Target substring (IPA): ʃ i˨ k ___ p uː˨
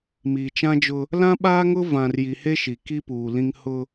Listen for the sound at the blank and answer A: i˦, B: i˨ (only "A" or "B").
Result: A